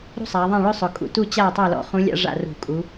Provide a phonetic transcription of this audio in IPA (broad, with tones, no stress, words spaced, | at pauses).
ɾṳ˥sˤa˩˧ðˤã˥˨ɭɵ˥ sˤʊ˩˧kʼṵ˩˧tu˥˨ t͡ɕa˥˨tˤa˥˨lɔ̰˥˨χũ˧˥ lʲa̰˥ʐa̰˥˨rṳ˧˩˧ kʼu˩˧